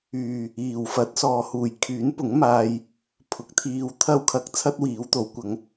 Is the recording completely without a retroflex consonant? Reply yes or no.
yes